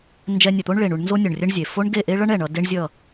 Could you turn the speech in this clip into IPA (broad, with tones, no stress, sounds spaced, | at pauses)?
n d͡ʒ ɛ˧ nʲ ɛ˨ t̪ o˦ ɳ ɭ e˨ ɳ u˧ ɳ n z o˦ nʲ o˨ ɳ rʲ ɛ˦ ɳ zʲ e˨ f o˦ ɳ ɡ e˦˨ ʔ e˦ ɭ ʌ˦ ɳ ɛ˨ ɳ ʌ˧ d e˦ ɳ zʲ ʌ˦˨